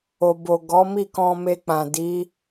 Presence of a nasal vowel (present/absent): present